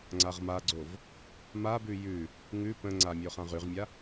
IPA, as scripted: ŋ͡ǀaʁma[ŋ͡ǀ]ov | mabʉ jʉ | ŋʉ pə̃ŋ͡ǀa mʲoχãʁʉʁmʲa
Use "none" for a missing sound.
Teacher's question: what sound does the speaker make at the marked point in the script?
ɡ͡ǀ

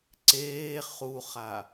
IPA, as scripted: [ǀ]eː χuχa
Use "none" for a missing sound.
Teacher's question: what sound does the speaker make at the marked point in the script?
ǀ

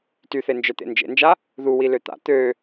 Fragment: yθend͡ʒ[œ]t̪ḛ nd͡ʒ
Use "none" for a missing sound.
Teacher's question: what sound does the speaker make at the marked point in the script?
œ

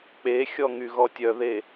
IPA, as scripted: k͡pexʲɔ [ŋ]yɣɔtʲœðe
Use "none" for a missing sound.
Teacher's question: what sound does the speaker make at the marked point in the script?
ŋ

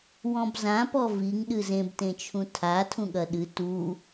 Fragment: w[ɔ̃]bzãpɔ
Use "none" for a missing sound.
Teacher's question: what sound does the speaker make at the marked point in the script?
ɔ̃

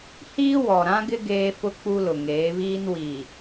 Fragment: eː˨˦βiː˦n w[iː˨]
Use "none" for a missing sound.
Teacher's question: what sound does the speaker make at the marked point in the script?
iː˨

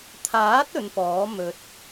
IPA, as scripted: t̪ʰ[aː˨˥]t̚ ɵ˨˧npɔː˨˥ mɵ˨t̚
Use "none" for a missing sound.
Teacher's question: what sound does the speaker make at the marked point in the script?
aː˨˥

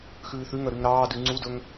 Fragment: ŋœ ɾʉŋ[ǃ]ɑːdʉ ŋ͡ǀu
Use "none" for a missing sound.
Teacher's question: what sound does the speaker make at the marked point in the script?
ɾ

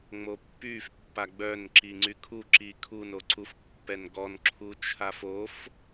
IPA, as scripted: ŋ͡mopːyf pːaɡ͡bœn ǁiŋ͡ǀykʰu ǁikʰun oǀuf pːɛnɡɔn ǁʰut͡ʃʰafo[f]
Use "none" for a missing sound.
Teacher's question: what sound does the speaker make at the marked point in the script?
f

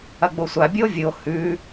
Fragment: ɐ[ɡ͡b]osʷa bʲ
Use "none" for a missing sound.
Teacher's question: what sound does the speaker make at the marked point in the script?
ɡ͡b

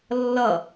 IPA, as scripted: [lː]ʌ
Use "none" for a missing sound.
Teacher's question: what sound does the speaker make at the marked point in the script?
lː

